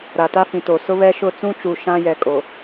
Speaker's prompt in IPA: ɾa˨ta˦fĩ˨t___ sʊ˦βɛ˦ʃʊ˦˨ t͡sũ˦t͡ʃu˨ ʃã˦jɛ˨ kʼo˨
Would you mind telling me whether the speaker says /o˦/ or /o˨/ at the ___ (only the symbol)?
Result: o˨